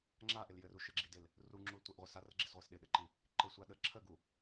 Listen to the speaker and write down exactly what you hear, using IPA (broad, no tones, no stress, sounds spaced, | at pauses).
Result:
ŋ͡ǁ a ʔ ɪ l j ɘ r u ʃ ɘ ɡ͡ǁ i d ɪ l | r u ŋ͡ǁ u l tʷ i ʔ ʁʷ ɪ s a r ə ɡ͡ǁ ɪ s ʁʷ i s ɗ ɪ ɗ ɘ ǃ i | ǃ ɪ sʷ a ɗ ə ǁʰ ə ɡ u